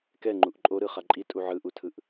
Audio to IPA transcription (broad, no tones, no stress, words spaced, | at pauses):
kɛŋ͡ǃuʔ ǃʼoɾɯχa ǃʼitʼu ʕɯʔutʰɯʔ